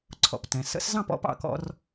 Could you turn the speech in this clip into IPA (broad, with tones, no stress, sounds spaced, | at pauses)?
ǀʰ ɔ̰˩ p t ɛ̃˩ s ə̰˧˥ s z ɑ̃˥˩ p ɔ̰˥˩ p ɑ̰˥˩ k ɔ̰˧ r